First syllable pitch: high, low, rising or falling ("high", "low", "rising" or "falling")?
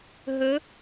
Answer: rising